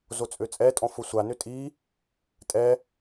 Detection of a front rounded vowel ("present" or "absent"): present